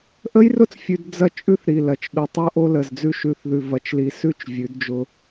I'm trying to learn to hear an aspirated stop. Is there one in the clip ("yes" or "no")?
no